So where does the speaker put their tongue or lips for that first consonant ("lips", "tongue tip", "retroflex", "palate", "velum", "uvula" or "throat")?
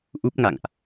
throat